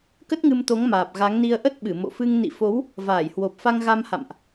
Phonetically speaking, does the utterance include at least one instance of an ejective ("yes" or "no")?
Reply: no